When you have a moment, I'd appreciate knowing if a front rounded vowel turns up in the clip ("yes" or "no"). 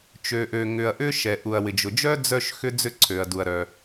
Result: yes